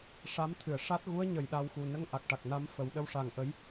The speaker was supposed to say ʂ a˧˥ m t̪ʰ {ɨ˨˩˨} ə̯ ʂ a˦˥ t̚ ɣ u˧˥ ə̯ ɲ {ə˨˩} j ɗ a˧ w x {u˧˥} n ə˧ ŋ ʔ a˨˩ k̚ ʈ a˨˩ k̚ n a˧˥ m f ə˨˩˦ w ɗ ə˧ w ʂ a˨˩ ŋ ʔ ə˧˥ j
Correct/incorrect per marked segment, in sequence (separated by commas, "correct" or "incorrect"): correct, correct, incorrect